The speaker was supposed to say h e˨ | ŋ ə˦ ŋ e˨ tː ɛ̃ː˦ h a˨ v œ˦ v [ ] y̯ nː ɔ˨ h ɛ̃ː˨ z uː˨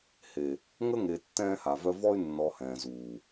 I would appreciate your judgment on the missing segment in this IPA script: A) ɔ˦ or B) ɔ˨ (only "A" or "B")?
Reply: A